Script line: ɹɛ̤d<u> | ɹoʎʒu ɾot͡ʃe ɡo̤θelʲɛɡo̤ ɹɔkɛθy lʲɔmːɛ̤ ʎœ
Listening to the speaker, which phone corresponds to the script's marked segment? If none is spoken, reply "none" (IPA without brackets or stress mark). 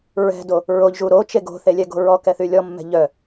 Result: o